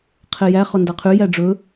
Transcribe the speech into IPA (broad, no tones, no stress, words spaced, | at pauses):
qʰejæ χɔndɑqʰy jæɖ͡ʐɵ